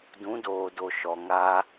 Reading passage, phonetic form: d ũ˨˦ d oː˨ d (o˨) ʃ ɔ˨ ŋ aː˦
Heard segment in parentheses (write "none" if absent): o˨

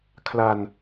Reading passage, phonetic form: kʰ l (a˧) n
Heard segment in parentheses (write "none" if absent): a˧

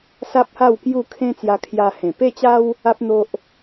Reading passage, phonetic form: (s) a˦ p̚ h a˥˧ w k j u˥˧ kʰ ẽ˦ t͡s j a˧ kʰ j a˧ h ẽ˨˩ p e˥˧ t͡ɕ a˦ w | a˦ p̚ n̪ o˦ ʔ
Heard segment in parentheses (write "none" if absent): s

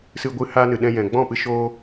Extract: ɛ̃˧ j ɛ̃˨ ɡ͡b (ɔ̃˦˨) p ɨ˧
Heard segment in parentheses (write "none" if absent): ɔ̃˦˨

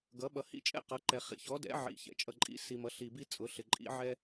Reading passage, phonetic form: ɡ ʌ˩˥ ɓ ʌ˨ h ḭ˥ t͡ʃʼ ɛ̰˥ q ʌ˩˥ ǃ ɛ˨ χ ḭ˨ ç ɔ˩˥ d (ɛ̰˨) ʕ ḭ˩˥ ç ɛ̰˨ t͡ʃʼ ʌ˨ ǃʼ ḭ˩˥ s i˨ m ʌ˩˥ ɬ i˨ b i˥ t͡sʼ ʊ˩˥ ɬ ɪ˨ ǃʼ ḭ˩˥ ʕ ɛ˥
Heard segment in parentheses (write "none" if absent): ɛ̰˩˥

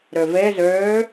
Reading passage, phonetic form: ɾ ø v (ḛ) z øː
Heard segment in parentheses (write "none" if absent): e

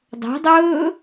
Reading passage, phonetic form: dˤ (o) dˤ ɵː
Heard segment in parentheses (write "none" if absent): o̤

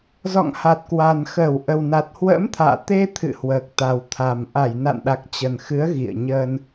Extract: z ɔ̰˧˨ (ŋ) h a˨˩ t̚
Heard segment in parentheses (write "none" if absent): ŋ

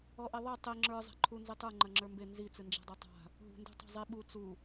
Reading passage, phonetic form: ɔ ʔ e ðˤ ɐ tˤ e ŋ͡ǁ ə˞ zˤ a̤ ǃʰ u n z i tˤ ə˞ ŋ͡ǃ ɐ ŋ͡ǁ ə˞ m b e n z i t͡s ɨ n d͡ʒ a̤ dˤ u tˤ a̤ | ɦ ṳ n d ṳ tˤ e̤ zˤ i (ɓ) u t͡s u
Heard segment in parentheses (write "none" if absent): ɓ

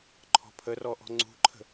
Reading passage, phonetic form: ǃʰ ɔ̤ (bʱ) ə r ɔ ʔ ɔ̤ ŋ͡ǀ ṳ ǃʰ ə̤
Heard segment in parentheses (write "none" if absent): pʰ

